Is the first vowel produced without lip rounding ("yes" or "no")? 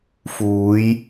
no